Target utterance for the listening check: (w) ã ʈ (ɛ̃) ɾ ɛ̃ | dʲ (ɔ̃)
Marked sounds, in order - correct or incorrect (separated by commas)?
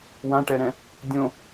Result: correct, incorrect, incorrect